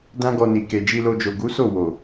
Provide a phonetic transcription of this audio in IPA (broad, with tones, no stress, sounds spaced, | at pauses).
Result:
d ã˦ ɡ ɔ˧ n i˨ k e˨ d͡ʒ i˧ l o˧ d͡ʒ o˨ ɡ u˨˦ s o˦˨ w o˨